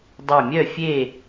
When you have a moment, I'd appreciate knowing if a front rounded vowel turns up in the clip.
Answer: yes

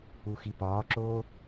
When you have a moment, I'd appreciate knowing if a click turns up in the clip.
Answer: yes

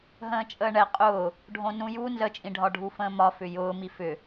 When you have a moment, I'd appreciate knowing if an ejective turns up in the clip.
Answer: yes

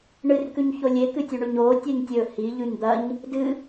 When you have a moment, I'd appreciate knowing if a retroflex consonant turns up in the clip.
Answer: yes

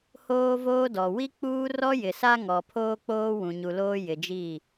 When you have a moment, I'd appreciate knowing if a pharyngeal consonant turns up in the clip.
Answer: no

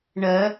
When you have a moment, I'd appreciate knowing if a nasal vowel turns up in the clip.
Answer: no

